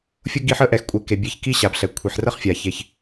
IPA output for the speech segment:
fʲʊ˥ɡi˦ħə˥ʔɛ˨x kʷʼe˨ke˩ bʲe˨ç ki˦ɕa˩b ɬɛ˩ kʷʰi˩ħrə˥χfʲa˩ çe˩ç

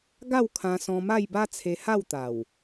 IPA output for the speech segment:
ɡa˥˧wkʰã˧sɔ̃˧ ma˥˧jba˦t͡sʰe˧ ha˥˧wt̪a˨˩w

